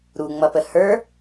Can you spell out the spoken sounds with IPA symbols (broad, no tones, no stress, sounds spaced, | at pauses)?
ɾ u ŋ͡m ʌ p ə h ə˞